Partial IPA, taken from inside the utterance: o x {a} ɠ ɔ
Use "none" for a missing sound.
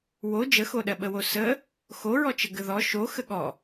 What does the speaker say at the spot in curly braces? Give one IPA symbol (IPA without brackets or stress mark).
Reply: ə